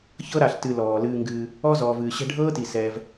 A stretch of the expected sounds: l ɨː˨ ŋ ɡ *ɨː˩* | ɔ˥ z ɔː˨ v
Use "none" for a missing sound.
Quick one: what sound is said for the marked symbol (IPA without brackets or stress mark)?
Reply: ɨː˩